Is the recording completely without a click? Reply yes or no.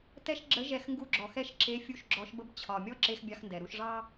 no